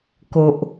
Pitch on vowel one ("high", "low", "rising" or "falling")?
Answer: low